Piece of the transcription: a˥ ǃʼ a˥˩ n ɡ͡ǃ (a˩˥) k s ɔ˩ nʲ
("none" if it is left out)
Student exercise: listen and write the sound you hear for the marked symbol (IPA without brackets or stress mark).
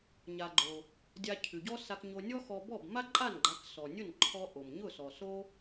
a˩˥